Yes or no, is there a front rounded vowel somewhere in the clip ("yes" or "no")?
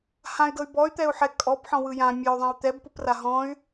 yes